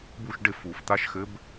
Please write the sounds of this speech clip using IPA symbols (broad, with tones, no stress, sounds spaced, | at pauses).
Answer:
b u˦˨ ʃ ɖ ɪ˦˨ f u˨˩˦ f t̪ a˧˥ ʃ x ɘ˧˥ b